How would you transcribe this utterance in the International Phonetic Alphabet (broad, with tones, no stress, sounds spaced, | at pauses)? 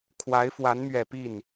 kʰ w a˧˥ ɪ̯ f w a˧˥ n m ɥ ɛ˨˩ p i˥˩ n